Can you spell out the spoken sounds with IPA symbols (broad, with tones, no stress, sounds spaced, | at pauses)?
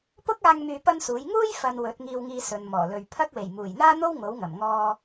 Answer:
p ʊ˥ k̚ aː˧ ŋ m yː˧ p ɐ˥ n s uː˨˥ j ŋ uː˥ j f ɐ˨ n w ɵ˨˥ t̚ ŋ iː˧ w ŋ iː˧ s ɵ˨ n m ɔː˨˩ l ɵ˨ ɥ pʰ ɐ˥ k̚ w e˨˩ j m uː˨˩ j n̪ aː˥ n̪ o˥ w ŋ o˨˥ w ŋ ɐ˨˩ m ŋ ɔː˧